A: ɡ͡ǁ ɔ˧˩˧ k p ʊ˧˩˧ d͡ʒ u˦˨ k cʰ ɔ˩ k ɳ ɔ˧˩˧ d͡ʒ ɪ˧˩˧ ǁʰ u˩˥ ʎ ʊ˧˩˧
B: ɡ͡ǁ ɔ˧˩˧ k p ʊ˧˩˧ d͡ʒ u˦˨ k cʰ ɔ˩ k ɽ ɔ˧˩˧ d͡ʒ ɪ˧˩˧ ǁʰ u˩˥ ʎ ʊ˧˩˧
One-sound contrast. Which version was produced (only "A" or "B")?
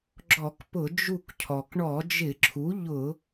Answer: A